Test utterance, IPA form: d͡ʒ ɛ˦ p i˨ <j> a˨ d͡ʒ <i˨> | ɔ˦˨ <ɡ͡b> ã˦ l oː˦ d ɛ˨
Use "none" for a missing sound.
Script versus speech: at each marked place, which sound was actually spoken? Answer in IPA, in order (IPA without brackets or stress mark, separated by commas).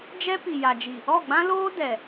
j, i˨, ɡ͡b